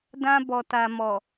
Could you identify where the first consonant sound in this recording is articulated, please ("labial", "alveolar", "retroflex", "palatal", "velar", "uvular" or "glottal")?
alveolar